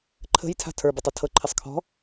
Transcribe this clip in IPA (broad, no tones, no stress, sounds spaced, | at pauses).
ǃʰ ə̤ j tʰ a̤ tʰ ə˞ b ɤ tˤ ɤ tʰ ɤ ǃʰ ɪ sˤ kʰ ɔ̤